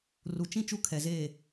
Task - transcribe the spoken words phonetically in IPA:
r u˨ t͡ʃ ĩ˦ t͡ʃ u˦ kʰ ɛ˨ z eː˦˨

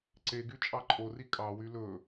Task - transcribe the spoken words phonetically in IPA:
ǀ e ɡ y t͡ʃʼ ɑ ǃʼ o r i kʼ ɑ w y l ɵ

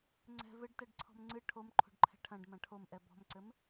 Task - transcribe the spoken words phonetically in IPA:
ŋ͡ǀ ɛ̤ v ɘ ɖ t ɛ ɖ ǀʰ ɔ̤ m ŋ͡ǀ ɨ ʈʰ o m ǃʰ o̤ ɖ ǃʰ ɛ̤ ʈʰ ɐ̃ ɖ m ɐ̃ ʈʰ o m ʔ ɛ b ɔ̤ m ǀ ɘ m

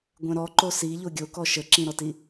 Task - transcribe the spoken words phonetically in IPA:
ɡʷ ɛ̃ ɾ ɔ ǃ o s i ʎ o ɡʲ o k ɔ ʃ ə ǁ ĩ ɾ ɔ t i

